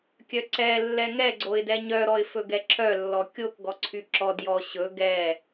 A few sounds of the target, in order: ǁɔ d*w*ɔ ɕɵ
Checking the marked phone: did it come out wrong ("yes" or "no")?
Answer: yes